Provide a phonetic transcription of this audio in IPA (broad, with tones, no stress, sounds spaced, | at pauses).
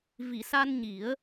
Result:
v i˨˩˨ s a˧ n ɲ i˨˩˦ ə̯